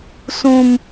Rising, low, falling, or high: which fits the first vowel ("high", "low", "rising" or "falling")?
high